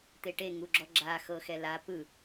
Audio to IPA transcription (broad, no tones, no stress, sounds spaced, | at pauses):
t̪ e ʈ e ŋ u ɡ͡ǁ ɔ ɡ͡ǁ a x ɤ x ɛ l a p ɯ